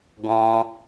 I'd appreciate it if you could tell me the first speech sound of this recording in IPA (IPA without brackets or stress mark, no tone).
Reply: ɡ